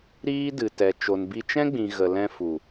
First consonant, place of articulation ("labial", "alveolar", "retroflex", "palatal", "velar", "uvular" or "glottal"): alveolar